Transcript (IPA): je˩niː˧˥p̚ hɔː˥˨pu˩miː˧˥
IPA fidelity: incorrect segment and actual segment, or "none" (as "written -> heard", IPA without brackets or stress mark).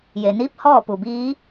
m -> b